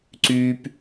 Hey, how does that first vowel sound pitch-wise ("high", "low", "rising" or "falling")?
high